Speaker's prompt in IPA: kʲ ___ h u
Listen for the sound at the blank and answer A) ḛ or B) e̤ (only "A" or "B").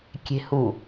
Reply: B